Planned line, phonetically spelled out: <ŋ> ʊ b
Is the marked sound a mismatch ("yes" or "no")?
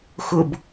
yes